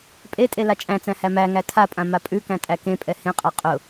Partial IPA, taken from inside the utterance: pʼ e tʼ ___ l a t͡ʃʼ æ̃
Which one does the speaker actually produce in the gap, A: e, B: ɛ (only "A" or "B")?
A